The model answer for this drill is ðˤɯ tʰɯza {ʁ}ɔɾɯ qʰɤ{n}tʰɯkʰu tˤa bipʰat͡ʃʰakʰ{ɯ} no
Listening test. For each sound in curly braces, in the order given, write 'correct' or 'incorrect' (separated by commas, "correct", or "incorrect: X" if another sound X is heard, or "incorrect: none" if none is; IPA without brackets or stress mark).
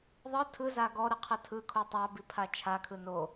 incorrect: ɡ, incorrect: none, correct